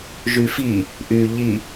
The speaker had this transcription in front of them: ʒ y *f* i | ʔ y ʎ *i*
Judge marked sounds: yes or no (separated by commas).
yes, yes